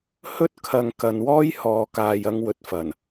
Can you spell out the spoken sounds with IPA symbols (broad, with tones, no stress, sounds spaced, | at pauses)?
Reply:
h ɵ˥ t̚ kʰ ɐ˨ ŋ k ɐ˨ n w ɔː˥ j h ɔː˨ k aː˨ j ɐ˧ ŋ w ɵ˧ t̚ f ɐ˨˩ n